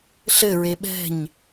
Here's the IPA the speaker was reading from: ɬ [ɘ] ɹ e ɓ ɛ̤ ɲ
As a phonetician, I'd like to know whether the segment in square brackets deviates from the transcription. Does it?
no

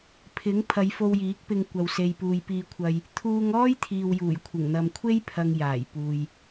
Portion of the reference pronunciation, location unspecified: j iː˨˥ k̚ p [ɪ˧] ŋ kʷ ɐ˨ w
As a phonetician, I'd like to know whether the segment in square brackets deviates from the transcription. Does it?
no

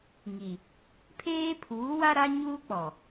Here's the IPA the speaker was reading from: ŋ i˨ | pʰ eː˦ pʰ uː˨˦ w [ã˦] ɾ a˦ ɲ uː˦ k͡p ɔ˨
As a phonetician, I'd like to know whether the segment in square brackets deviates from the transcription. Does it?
yes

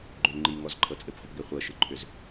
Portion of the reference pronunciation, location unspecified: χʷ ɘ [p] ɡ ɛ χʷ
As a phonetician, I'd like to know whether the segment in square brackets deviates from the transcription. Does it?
no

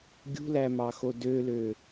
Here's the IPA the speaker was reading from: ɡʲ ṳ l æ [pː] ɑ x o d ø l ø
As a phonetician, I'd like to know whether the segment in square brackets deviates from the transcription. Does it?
yes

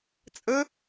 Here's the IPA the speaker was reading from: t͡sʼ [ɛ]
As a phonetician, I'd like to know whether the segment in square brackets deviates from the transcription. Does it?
yes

